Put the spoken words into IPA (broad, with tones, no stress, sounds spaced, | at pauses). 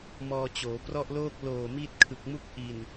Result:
m ɔː˧ t͡ɕ oː˩˦ p r ɔ˥˩ ʔ l oː˥˩ k̚ l oː˨˩ m i˦˥ t̚ kʰ ɯ˨˩ k̚ m u˦˥ k̚ ʔ i˨˩ n